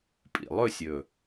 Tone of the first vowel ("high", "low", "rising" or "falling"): low